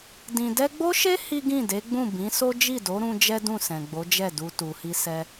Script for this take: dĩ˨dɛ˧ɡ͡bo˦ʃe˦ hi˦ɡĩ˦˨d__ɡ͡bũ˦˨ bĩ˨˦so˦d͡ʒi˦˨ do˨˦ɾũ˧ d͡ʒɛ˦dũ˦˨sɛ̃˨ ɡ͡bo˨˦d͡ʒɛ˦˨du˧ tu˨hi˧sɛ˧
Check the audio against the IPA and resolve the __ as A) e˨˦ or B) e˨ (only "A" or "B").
A